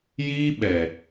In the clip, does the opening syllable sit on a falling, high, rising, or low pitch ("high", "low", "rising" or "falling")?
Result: high